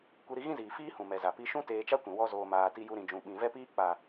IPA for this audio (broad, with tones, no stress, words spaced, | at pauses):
kʷi˧ɾi˧ɣĩ˦ziː˨ fiː˦hũ˨ mɛ˨za˨ pi˧ʃũ˦ teː˧t͡ʃa˦kʷĩ˨ wɔ˧zoː˨maː˨ ti˧ju˧ ɾĩ˨d͡ʒũ˨ ɓĩ˨vɛ˦piː˦ k͡pa˨